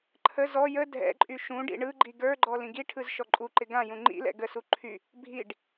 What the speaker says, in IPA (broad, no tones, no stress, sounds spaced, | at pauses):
ǃʰ ə z ɔ j ə dʱ ɛ̰ ǃʼ y ʃ ũ ɖ ḭ ɳ ɯ ɡ͡ǃ i ɡ ə˞ ɡ͡ǃ ɔ l ĩ ɡ i ʈʰ ɯ z ʃ ɔ ǃʼ u ǃ ɪ ɡ ã j ũ ŋ͡ǃ ḭ l ɛ̰ ɡ ə s u ǃʰ y | bʱ i ɖ